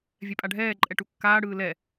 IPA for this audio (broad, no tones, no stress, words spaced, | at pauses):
vʲɛpʼaɖʱɛː ǃʼɛʈukːaːɽɯː lɛ